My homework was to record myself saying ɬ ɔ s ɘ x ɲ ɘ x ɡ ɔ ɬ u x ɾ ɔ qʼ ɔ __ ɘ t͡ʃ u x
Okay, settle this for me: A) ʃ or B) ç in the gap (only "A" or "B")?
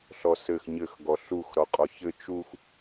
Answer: B